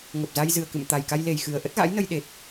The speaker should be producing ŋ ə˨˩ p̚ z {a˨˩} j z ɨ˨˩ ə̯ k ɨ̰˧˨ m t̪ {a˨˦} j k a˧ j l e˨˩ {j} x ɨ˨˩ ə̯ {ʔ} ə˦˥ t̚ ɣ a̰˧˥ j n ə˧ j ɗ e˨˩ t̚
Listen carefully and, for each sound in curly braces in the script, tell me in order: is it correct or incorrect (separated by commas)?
incorrect, incorrect, correct, correct